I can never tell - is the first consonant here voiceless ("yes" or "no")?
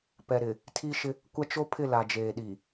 yes